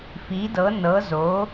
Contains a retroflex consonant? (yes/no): no